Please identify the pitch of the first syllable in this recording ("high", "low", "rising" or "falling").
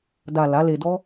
low